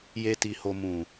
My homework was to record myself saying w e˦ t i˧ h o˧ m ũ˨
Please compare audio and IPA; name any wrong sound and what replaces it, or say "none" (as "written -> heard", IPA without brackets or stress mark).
w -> j